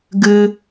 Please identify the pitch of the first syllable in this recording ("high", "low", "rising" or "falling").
high